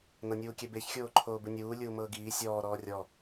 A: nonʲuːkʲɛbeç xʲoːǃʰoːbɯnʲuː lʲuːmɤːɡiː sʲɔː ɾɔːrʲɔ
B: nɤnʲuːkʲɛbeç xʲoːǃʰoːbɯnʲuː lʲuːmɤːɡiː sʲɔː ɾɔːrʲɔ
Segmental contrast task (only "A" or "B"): B